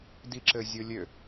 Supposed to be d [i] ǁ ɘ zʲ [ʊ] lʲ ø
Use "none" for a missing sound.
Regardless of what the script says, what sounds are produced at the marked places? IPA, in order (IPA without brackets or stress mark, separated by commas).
i, ʊ